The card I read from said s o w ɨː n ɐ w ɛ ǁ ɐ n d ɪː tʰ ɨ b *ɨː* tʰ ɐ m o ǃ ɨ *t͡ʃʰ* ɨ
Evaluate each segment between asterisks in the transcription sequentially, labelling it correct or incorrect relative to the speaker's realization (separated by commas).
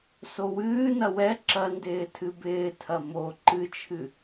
incorrect, correct